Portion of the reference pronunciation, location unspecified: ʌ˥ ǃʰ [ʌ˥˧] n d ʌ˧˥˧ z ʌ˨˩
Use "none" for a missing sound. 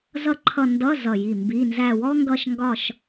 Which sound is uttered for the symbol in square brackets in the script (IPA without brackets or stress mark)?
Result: ʌ˥˧